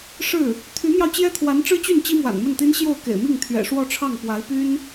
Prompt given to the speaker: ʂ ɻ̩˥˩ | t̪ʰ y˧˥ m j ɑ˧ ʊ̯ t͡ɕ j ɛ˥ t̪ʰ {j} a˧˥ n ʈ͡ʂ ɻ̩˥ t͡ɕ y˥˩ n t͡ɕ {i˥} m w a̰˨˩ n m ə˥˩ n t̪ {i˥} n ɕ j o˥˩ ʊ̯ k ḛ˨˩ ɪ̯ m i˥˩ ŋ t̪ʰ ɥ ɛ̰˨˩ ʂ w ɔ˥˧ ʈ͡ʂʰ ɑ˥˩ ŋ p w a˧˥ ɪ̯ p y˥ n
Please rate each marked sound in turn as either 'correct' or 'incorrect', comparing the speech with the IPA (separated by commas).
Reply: incorrect, correct, correct